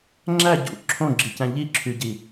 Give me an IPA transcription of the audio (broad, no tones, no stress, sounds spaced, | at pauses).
ŋ͡ǁ æ ɟ ṵ ǁʰ õ ɡ͡ǁ i c æ̃ ʎ i ǁʰ y ɟ i